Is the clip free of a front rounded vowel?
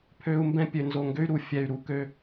no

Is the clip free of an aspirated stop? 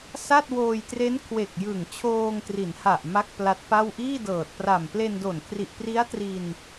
no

